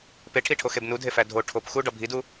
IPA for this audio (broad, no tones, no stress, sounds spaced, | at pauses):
p e ʈʰ i ʈʰ o x e b n u dʱ e f æ dʱ o ʈʰ o p x u ɖ ɒ bʱ i d u